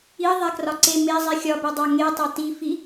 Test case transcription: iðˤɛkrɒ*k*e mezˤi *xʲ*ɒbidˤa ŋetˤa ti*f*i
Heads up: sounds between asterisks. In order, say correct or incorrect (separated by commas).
incorrect, correct, correct